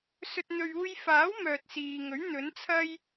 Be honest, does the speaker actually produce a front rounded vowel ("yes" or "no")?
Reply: yes